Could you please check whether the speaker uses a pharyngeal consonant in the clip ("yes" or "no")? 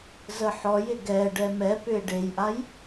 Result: yes